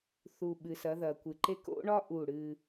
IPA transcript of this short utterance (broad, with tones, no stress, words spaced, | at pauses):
θu˨ɓɨ˨s ɐ˨˦ðɐ˨kʷɨ˨ǃe˦ ko̰˦ɳɒ˦ ʔu˦˨ɽɨ˦